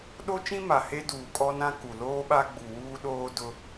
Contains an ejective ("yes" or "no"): yes